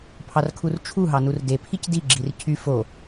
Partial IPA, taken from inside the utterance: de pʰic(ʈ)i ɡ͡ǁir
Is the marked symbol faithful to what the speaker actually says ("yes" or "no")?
no